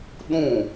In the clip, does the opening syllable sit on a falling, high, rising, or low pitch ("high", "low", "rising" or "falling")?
falling